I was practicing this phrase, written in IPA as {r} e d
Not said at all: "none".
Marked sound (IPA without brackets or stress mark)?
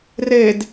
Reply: r